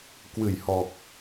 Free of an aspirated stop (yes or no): yes